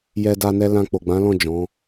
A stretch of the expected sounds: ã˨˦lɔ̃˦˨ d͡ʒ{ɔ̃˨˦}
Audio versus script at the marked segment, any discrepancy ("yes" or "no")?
no